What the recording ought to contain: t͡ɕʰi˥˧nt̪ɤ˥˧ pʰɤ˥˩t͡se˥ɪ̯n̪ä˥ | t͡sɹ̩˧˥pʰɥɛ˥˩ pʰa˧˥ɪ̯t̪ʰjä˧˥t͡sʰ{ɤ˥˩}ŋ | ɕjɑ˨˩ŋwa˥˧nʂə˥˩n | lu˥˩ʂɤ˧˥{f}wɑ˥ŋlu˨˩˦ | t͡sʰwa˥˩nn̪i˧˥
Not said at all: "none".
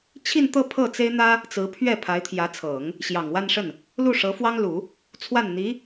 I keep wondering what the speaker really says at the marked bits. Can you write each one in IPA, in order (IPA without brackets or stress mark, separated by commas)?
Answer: ɤ˨˩˦, f